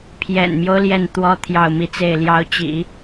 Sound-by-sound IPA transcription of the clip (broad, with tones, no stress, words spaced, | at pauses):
pʰjɛ̰˨˩nmjo˦ʊ̯ ljɛ˥˩nt̪wɔ˥ t̪ʰjɑ˥˩ʊ̯mi˥t͡se˥˩ɪ̯ljɑ˥ʊ̯ t͡ɕḭ˨˩˦